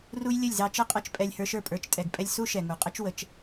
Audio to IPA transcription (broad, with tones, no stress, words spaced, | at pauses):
ru˦j lʲə˦˨lʲzɑ˧t͡ʃɤ˦qʼɤ˧t͡ʃ pʼɛ˧lʲhə˞˧ʃə˞˦˨ pʼə˞˨˦t͡ʃtʼɛ˨ɡpʼɛ˧lʲ su˦ ʃɛ˨ŋu˨qʼə˦t͡ʃ wə˧t͡ʃ